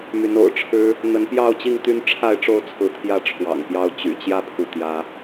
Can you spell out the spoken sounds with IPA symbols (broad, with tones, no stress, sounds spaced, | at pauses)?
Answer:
m y˨˦ n o̰˨˩ ʊ̯ ʈ͡ʂʰ ɻ̩˦ | n̪ ə˨˦ n p j ɑ˥˨ ʊ̯ t͡ɕ i˥˨ ŋ t̪ y˦ n ʈ͡ʂʰ a˥˨ ɪ̯ ʈ͡ʂ o˥˨ ʊ̯ t͡sʰ ɹ̩˨˦ t̪ʰ j ä˥˨ ʈ͡ʂʰ w ɑ̰˨˩ ŋ p j ɑ˥˨ ʊ̯ t͡ɕ y̰˨˩ t͡ɕ j ä˥˨ pʰ u˥˨ t̪ j ä˦